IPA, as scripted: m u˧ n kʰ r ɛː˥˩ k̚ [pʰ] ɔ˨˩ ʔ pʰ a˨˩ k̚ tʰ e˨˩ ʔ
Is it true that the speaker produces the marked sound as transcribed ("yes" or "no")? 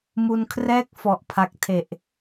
no